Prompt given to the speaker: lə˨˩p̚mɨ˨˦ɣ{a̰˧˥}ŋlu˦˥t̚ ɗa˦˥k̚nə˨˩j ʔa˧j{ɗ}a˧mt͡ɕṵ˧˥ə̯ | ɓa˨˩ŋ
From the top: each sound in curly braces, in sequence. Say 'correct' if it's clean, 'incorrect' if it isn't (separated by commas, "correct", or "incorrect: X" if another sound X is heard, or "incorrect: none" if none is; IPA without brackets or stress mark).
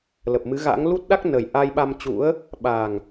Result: correct, incorrect: ɓ